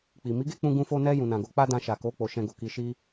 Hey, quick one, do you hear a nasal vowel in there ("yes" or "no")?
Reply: yes